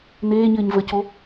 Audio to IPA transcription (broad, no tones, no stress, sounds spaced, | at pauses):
n̪ eː ɲ ɘː ɲ v ə c o